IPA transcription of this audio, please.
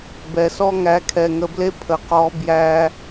b ɛ˨ s ɔ˦ ŋ æ˨˦ kʰ ɛ˨ ŋ ə˨ b l e˦ pʰ ə˨ q ɔ˨˦ b j æ˧

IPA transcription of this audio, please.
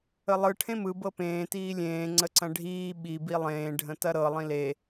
ə lˠ ɯ ʈʰ ẽ m ɯ b ɤ p ẽː t iː lʲ ẽː ŋ͡ǀ ə ǀ ɐ̃ ɖʱ iː ɓ i b i lˠ ẽː ɖʱ ə̃ t ɐ ɾ ɤ lˠ ĩ l e

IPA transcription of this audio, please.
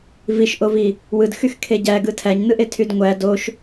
v i ʃ ʔ o v i | w ɯ d x y x kʰ e ɟ æ ɡ ɯ tʰ æ ɲ n ɯ ʔ e tʰ y d ŋʷ æ d o ʃ

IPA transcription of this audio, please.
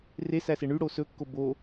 r e s æ s e ɳ y ɽ o s ɵ kː o b o

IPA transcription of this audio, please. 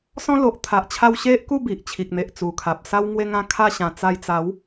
s ɔ̃˦ l o˨ ʔ t̪ʰ a˨ ʔ t͡ɕʰ a˧ w ɕ e˦ ʔ k u˥˧ b i˨ ʔ t͡ɕʰ i˨ k̚ n̪ e˨ ʔ t͡s u˨˩ kʰ a˨ p̚ s a˧ w ŋ w e˧ ŋ ã˧ kʰ a˧ ɕ ã˨˩ t͡s a˧ j t͡s a˨˦ w

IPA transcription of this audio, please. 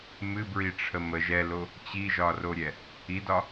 m ɨ b ɹ i ʈ͡ʂʰ ə m ə ʒ ɛ l o | t͡ɕ i ʒ ɒ r o ɾʲ ɛ | i d ɒ

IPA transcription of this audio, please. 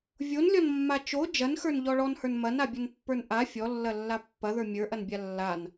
vʲ o n lʲ ɔ n mː a t͡ʃ o d͡ʒ ɐ n x ə˞ n ʎ ɔ ɭ ɔ n h ə˞ n m ɐ n a bʲ ɐ n pː ə˞ n ʔ a fʲ ɔ lː ɐ lː a pː ɐ ð ə˞ mʲ ə˞ ʔ ɐ n bʲ a lː a n

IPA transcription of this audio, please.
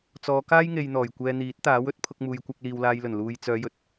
t͡s ɔː˨˧ k aː˥ j ŋ e˧ j n̪ ɔː˨˩ j kʷ ɛː˧ n̪ iː˨˥ t̚ t̪ aː˨˥ w ɵ˨˥ t̚ pʰ ʊ˧ k̚ m uː˨ j kʷ ɐ˧ k̚ l iː˨ w l aː˨ j l ɵ˨˩ n l uː˧ j t͡s œː˨˧ j ɵ˨˥ t̚

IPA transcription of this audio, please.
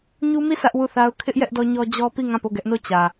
ɲ u˦ m i˦˨ s ä˦ ʔ w u˦˨ θ a˦ ʊ̯ kʰ ɪ˦ ʔ j ɛ˦ ʔ d ɔ˦ ɲ ɔ˦ d͡ʑ ɔ˦ p i˦˨ ŋ ã˦˨ p o˦˨ ɡ ɛ˦ ʔ n o˦˨ t͡ɕ ä˨

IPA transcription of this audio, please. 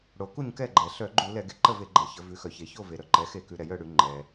ɽ o˩˧ k u˥˨ ɲ k ɛ˥˨ ɡ͡ǃ ɛ˩ ɬ œ˧˩˧ ɡ͡ǃ u˧˩˧ l ɛ˧˩˧ ɡ e˩ ǃ ə˥˨ v e˧˩˧ ɡ͡ǃ ɛ˩ ç ə˩˧ v ʉ˩˧ x œ˩ ç e˩ ç o˥˨ v e˩ ɾ œ˩ ǃ ɛ˩˧ x e˧˩˧ k ʉ˩˧ ɾ ɛ˩ j œ˥˨ ɽ ʉ˧˩˧ ŋ͡ǃ ɛ˩

